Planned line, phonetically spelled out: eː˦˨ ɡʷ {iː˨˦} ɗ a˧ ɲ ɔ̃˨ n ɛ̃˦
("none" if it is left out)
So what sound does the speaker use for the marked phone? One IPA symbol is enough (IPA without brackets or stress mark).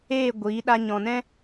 iː˨˦